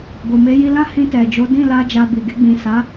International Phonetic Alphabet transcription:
ɡ o˨ m e˨˦ j i˧ l ã˦ h ĩ˧ t ɛ˨ d͡ʒ o˨˦ d ĩ˦˨ l a˧ d͡ʒ a˧ b i˨ ɡ e˧ ɡ͡b ĩ˨ s a˨˦

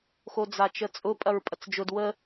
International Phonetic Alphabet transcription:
x o d͡z a t͡ʃ ə t͡sʼ ʊ pʼ ɐ ɹ pʼ ɐ t͡s d͡ʒ ʊ d w ə

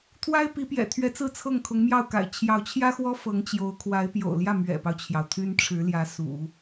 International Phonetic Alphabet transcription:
t̪ʰ w a˥ ɪ̯ p i˧˥ p j ɛ̰˨˩ t̪ʰ ɥ ɛ˧˥ t͡s ɹ̩˥˧ t͡sʰ ɤ˥˩ ŋ kʰ ʊ˧˥ ŋ m j ɑ˥˩ ʊ̯ k a̰˨˩ ɪ̯ t͡ɕʰ j ɑ˧˥ ʊ̯ t͡ɕʰ j ä˥ x w ɔ˥ f ɤ˧˥ ŋ t͡ɕ j o˧˥ ʊ̯ kʰ w a˧˥ ɪ̯ p j o̰˨˩ ʊ̯ l j ä˥˩ m ɥ ɛ̰˨˩ p ɑ˦ ʊ̯ t͡ɕʰ j ɑ˩ ʊ̯ t̪ʰ y˥ n ʈ͡ʂʰ ɻ̩˧˥ l j ä˧˥ s ṵ˨˩˦

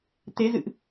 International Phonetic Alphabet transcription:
t̪ e˨˦ z ɨ̰˧˨ ʔ

